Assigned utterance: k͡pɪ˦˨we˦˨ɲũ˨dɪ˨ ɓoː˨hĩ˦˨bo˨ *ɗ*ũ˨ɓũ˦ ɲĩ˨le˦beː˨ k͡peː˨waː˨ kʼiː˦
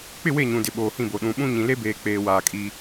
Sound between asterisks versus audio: correct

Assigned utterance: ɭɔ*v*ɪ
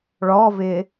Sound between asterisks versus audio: correct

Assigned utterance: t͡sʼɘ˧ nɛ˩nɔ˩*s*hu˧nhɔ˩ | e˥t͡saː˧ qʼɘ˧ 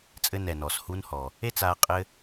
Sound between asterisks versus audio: correct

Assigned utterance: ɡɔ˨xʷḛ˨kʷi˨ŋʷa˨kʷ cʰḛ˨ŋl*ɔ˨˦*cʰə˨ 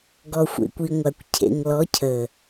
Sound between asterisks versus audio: correct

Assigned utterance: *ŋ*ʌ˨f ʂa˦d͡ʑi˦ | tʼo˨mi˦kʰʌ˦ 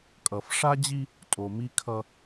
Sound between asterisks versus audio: incorrect: kʼ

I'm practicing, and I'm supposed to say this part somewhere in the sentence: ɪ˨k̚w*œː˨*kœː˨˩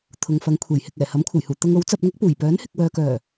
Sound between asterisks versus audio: correct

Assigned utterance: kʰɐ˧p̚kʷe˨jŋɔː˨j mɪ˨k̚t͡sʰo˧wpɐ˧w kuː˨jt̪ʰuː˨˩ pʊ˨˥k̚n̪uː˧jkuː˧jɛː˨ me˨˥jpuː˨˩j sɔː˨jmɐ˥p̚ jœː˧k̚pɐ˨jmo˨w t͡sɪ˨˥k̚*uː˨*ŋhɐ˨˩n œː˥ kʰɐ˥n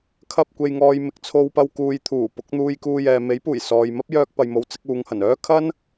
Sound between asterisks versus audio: incorrect: uː˨˧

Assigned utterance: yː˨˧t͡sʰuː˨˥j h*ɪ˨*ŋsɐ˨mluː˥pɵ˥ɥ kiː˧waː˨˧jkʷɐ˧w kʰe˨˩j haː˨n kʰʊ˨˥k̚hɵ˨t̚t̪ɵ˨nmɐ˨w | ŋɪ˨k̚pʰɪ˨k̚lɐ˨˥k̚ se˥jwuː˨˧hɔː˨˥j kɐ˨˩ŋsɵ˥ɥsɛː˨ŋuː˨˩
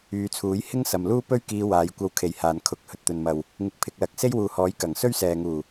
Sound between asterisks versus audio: incorrect: ɪ˥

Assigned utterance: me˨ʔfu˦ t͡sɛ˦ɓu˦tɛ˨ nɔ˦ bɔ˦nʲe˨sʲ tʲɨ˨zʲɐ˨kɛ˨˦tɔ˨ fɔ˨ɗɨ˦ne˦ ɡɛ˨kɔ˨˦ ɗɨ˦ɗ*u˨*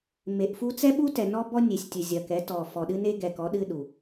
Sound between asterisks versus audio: correct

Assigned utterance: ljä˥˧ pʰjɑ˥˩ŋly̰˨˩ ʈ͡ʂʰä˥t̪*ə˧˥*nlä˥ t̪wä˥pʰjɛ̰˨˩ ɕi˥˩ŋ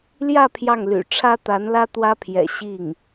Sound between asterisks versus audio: incorrect: a˧˥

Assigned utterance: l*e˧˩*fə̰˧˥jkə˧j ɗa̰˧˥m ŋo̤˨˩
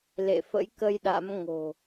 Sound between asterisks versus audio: incorrect: ḛ˧˨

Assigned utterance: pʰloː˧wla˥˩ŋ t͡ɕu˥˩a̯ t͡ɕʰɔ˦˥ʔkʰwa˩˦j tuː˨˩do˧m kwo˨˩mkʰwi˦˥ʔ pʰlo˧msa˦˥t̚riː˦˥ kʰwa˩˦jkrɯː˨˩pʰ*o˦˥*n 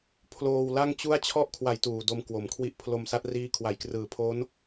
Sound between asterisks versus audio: correct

